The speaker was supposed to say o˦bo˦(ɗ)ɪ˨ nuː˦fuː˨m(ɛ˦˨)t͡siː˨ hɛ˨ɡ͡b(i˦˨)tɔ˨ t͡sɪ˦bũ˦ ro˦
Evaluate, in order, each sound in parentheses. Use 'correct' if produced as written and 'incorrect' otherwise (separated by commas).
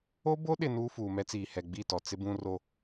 correct, incorrect, correct